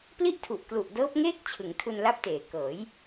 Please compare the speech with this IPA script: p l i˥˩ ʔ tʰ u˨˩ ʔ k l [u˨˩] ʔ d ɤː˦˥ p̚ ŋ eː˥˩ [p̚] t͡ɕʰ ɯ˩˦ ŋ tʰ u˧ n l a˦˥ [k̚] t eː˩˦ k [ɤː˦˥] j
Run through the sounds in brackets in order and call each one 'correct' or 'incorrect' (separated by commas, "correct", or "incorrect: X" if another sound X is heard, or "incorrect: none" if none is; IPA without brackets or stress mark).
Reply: correct, incorrect: k̚, incorrect: p̚, incorrect: ɤː˩˦